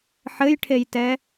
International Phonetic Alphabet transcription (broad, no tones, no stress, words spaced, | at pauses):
ħɘjʈʰejtɛ